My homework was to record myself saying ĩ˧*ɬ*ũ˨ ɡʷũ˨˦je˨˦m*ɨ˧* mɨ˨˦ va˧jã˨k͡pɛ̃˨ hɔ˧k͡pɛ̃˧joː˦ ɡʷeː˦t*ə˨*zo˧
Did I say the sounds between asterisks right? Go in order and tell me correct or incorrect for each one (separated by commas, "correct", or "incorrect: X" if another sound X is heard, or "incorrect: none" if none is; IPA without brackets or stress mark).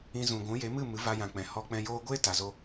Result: incorrect: z, incorrect: ɨ˦˨, incorrect: a˨